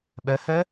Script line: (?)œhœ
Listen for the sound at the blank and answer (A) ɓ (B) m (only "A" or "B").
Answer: A